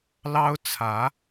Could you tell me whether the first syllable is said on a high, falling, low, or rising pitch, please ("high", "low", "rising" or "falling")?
high